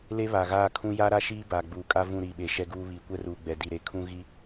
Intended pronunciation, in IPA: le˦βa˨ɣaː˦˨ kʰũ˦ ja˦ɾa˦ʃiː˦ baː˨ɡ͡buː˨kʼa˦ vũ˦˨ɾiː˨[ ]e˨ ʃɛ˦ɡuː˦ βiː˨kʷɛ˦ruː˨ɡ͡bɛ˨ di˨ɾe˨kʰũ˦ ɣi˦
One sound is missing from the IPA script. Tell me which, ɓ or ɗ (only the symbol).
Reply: ɓ